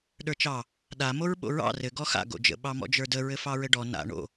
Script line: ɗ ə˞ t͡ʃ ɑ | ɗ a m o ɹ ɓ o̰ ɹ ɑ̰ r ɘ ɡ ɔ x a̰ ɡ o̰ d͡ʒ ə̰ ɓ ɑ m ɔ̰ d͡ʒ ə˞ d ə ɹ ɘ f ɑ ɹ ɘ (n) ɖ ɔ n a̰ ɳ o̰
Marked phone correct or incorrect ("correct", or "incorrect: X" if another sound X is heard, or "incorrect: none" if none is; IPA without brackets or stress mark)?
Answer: incorrect: none